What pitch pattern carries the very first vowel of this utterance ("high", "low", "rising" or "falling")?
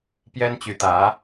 high